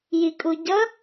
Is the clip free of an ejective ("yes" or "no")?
no